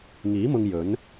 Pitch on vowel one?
rising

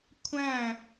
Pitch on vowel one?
falling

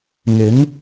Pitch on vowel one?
rising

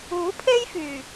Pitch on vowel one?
rising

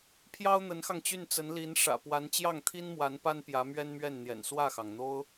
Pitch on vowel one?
high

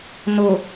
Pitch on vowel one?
low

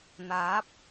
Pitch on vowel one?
rising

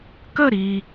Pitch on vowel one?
falling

